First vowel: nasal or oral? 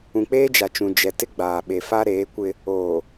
nasal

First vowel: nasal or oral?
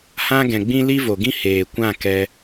nasal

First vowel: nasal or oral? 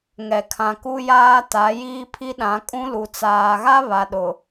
oral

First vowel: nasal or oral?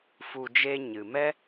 oral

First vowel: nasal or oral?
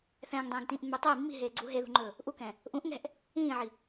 nasal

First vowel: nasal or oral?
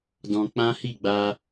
nasal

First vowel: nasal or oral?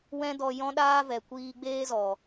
nasal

